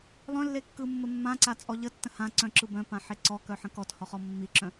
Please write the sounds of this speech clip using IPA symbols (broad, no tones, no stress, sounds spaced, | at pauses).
lˠ œ̃ lː e kː ɯ mː ə mː ã ǀ a t͡sʼ ɔ ʎ ə tː ə̃ h ã ǀ œ̃ ǁ ɯ b œ̃ p ã ħ e ǀ ɔ k œ ħ ə̃ k ɔ t h ɔ χ ɔ mː i ǁ œ̃